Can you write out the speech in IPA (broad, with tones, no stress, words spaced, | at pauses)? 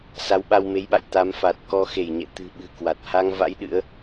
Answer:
sa˨˦wɓa˧wme˨˦jɓa̰˧˨j t̪a˨˦mfa˨˩t̚ kɔ˧ xe˧˩jɲɛ̰˧˨ t̪ɨ̤˨˩ɓɨ̤˨˩ kwa˨˩t̚ ha˧ŋva̰˧˥j ɗɨ̰˧˥ə̯